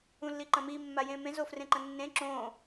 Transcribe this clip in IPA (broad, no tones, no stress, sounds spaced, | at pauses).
ũ lː i ǃ ɐ̃ m i mː a j ẽ m ẽ z o f r ẽ ǃ ɐ̃ nː ẽ ǁ õ